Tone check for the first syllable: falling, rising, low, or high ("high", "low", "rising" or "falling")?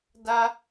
high